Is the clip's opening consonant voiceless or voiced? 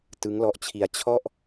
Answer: voiceless